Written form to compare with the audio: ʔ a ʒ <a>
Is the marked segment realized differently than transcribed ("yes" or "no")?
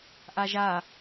no